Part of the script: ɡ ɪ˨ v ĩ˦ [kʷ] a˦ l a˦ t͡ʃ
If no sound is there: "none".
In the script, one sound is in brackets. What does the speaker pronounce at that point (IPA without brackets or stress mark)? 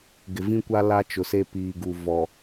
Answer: kʷ